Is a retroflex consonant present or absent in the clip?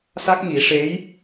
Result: present